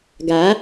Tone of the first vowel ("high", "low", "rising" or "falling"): rising